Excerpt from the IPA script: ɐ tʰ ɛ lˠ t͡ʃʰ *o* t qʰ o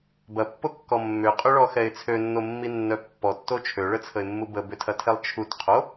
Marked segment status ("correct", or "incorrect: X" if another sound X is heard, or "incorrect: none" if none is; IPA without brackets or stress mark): incorrect: u